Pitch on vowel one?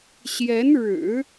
rising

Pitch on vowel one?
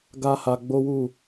high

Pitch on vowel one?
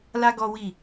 high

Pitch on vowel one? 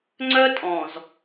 high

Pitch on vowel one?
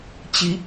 rising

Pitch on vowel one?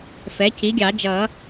rising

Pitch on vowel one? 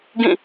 falling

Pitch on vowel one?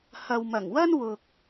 low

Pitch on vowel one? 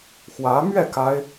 rising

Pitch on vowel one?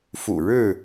low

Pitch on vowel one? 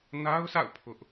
high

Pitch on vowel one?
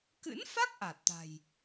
rising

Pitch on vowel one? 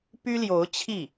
high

